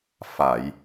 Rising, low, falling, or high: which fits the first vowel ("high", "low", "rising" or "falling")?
low